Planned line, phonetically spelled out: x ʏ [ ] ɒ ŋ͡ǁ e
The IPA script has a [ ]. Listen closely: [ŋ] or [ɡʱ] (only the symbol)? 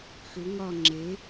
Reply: ŋ